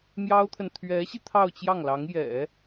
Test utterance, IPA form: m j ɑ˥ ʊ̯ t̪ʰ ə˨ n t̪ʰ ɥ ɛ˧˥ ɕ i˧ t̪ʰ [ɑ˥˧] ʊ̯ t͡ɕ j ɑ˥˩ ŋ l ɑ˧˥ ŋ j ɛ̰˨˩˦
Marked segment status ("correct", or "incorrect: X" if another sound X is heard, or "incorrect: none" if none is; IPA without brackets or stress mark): correct